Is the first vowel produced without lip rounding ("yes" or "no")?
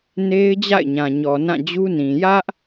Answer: yes